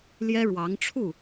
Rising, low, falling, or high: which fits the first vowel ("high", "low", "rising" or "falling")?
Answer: high